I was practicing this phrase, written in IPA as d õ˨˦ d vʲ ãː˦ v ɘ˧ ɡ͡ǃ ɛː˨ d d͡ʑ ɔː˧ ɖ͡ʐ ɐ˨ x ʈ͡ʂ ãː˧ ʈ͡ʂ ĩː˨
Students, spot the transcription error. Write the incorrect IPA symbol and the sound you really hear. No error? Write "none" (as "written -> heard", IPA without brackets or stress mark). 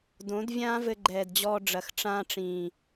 none